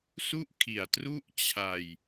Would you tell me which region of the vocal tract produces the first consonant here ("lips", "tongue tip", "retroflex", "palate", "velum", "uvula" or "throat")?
tongue tip